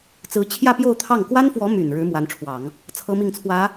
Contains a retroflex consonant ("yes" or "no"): yes